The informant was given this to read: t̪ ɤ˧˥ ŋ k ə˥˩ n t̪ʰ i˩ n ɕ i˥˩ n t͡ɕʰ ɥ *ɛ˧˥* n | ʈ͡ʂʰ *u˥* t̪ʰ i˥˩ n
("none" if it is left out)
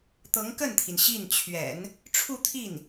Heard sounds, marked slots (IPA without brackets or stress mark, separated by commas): ɛ̰˨˩˦, u˥˧